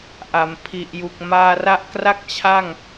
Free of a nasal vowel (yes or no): yes